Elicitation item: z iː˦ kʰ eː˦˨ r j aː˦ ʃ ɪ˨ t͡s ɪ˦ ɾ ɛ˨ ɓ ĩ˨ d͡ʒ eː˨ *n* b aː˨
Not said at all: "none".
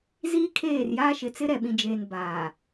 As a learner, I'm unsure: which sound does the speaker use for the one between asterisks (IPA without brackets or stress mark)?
n